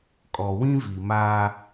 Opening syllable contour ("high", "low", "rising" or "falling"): low